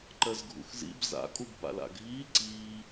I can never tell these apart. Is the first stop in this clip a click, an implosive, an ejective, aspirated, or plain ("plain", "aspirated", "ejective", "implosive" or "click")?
click